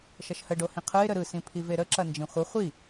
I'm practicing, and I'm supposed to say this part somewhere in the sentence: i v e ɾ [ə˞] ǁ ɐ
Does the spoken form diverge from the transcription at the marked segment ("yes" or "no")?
yes